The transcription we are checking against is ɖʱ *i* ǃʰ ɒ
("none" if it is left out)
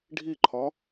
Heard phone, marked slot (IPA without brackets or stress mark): i